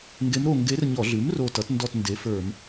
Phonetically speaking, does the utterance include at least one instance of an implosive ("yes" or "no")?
no